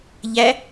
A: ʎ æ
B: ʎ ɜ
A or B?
A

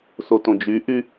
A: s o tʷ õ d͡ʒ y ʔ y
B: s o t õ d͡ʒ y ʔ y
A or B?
B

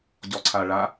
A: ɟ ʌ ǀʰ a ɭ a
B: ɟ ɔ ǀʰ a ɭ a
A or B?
B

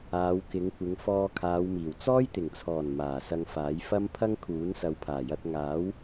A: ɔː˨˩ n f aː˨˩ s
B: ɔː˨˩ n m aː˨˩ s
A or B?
B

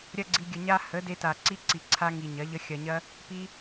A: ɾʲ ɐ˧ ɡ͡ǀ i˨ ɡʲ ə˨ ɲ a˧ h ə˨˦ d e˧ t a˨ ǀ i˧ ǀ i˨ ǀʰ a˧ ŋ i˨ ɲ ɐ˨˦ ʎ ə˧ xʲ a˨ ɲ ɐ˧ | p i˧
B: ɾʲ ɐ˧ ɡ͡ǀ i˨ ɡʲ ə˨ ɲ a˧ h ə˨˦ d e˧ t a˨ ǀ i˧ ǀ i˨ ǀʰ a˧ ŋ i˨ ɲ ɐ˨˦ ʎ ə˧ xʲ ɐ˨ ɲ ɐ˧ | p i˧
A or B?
B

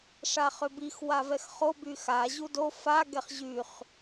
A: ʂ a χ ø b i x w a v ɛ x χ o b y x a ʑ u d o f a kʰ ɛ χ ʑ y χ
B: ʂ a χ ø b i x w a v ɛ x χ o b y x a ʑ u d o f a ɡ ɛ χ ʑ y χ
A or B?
B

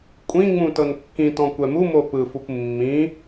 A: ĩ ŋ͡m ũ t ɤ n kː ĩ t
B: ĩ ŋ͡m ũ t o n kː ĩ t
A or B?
A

